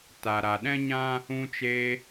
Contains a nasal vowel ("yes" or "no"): yes